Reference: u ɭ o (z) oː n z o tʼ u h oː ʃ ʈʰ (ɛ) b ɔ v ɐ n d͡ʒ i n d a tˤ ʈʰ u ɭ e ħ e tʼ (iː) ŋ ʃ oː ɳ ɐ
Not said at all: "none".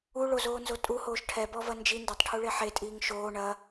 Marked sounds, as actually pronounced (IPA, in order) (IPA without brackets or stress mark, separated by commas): z, ɛ, iː